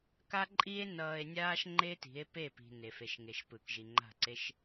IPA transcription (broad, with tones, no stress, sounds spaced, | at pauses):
k a˦ ǃʼ i˦ e̯ n ʌː˧ e̯ nʲ aː˦ ʃ ŋ͡ǃ e˦ t i̤˨˦ e̯ p e˦˨ p i̤˨ n e˨ f e˨ ʃ ŋ e˨ ʃ p ɯ˨ k ʒ i˨ ŋ͡ǃ a̤˦˨ ǀ e˦ ʃ